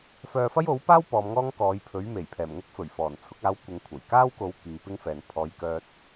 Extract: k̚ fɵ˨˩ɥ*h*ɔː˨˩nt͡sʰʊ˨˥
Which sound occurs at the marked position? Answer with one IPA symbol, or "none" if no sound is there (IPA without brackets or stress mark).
f